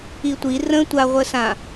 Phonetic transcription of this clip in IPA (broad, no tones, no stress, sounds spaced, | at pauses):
i tʷ i r ə̃ tʷ a ʁʷ ə s ã